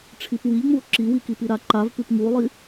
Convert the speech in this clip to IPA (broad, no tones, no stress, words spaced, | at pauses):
ʈ͡ʂʰipwiʎŋ͡muo̯ ǁiwikipi ɾaǃav pʉpŋuo̯lˠi